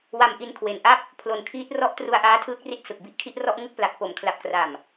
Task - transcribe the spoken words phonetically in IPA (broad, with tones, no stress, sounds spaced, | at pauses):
w a˧ m ʔ i˧ n kʰ w e˩˦ n ʔ a˥˩ p̚ | pʰ l o˨˩ n kʰ iː˦˥ t̚ r ɔ˥˩ ʔ t r u˧ a̯ ʔ aː˦˥ tʰ ɯː˦˥ k̚ r i˦˥ t̚ s ɯ˨˩ k̚ b i˥˩ ʔ kʰ i˥˩ ʔ r ɔ˥˩ ʔ ŋ ɯ˥˩ k̚ p l a˨˩ k̚ p o˩˦ m kʰ l a˨˩ p̚ k r a˨˩ m